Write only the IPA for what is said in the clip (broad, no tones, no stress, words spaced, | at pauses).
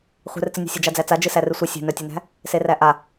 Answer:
χʷɛ̤rt͡sɨnʲɛ̤ sʲɛd͡ʒad͡zæt͡sa d͡ʒɨsærɨsʷɨ sʲe̤nœtʲenæ̤ | seræʔa